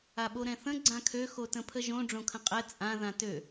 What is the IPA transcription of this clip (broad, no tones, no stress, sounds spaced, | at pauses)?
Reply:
a ɓ o ɾ ɛ̃ θ ə̃ ɡ͡ǀ ã kʰ ø x o t ə̃ pʰ ə ʒ õ ɖ͡ʐ õ kʰ ə̃ qʼ ɛ t͡sʼ ã ð ã t ø